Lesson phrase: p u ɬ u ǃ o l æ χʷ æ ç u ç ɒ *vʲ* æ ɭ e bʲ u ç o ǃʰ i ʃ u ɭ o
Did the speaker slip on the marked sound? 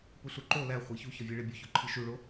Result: no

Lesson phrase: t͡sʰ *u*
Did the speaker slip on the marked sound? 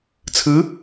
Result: yes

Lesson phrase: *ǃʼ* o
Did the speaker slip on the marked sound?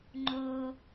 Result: yes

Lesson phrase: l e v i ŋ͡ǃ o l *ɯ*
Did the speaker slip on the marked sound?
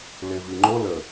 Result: yes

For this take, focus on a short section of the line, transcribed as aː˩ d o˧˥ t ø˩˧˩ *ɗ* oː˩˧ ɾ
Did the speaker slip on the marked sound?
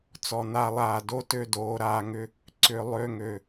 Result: yes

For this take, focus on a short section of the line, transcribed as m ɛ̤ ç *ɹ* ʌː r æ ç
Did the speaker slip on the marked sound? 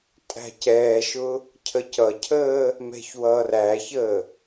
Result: yes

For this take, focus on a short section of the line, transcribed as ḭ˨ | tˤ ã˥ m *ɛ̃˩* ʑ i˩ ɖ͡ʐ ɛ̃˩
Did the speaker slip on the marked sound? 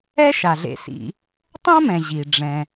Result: no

